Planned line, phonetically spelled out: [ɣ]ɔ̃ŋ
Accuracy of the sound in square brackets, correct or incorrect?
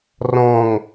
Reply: incorrect